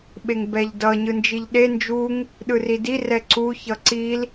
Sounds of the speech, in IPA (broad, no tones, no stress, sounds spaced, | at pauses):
ɓ e ŋ b ɛ ʎ d ʌ ɲ ɯ n d͡ʒ i ʎ ɗ e n d͡ʒ u ŋ | ɗ ɯ r i d i r ɛ ǀ u ç ʌ ǀ i l